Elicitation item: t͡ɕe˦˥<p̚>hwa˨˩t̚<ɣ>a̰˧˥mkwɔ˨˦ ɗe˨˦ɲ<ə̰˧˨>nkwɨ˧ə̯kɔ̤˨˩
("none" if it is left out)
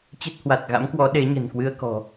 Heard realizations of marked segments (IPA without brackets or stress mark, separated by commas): t̚, ɣ, ə̤˨˩